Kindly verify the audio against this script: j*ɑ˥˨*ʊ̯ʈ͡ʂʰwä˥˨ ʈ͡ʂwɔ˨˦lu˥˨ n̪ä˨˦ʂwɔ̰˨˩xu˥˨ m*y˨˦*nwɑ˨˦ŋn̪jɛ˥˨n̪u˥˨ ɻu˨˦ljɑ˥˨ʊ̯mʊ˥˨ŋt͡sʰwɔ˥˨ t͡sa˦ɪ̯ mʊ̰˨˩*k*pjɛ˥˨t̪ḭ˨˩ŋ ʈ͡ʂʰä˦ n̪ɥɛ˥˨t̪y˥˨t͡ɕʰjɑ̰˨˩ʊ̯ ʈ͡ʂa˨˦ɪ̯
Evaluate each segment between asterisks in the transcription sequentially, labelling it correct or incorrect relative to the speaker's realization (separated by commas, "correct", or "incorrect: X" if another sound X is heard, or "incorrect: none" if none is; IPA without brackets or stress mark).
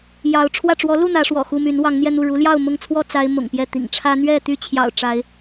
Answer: incorrect: ɑ˨˦, correct, incorrect: ŋ